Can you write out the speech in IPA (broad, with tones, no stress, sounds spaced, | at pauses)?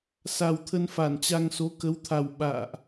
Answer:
s a˨˩ w t̪ʰ ə˧ n f a˧˩ n t͡ɕ a˧ ŋ s o˨˦ k ə˨˦ w t̪ʰ a˨˩ w ɓ a̰ː˧˨ ʔ